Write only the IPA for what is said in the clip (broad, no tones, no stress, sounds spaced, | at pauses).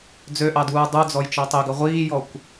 d͡z ø ʔ ɑ d uː dˤ u d͡z ɔ j t͡ʃ ɑ tˤ ø ɡ ɐ ʁʷ iː j ɔ kʷ